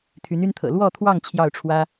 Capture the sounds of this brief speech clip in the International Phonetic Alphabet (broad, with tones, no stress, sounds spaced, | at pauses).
t̪ʰ y˧˥ n y˥ n t̪ʰ ɤ̰˨˩ l w ɔ˥˧ t̪ʰ w ɑ˥˧ ŋ t͡ɕʰ j ɑ˥˩ ʊ̯ ʈ͡ʂʰ w ä˥